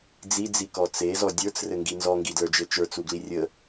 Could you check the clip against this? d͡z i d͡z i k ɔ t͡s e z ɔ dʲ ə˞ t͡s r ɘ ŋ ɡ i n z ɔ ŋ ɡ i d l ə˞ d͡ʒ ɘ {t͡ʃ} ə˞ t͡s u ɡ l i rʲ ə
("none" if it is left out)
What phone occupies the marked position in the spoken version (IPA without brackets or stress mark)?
t͡ʃ